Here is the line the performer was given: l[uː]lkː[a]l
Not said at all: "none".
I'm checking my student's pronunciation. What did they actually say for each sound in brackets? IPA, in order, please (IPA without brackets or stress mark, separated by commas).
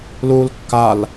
uː, a